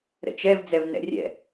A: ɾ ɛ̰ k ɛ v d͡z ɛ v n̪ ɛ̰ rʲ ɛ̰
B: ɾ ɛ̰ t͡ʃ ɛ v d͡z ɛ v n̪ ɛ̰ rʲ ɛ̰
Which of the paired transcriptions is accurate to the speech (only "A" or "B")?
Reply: B